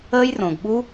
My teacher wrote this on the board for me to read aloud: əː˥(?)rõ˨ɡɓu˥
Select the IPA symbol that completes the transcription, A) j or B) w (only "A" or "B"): A